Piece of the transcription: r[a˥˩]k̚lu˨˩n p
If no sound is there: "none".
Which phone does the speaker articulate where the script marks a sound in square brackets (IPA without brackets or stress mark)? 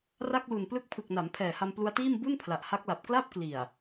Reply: a˥˩